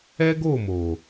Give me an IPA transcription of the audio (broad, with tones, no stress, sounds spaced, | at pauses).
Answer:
ɛ˦ ɡ o˦˨ m o˨